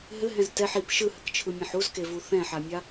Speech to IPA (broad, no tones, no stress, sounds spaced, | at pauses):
ɦ ɘ ɦ ɛ̃ z t ɛ ħ i p ʃ ɯ h ɘ k t͡ʃʰ ɯ mʲ ẽ ħ u z k e v u θ ɛ̃ ħ a mʲ a